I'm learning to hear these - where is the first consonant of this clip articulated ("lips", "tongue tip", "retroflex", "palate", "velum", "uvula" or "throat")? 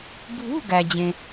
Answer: lips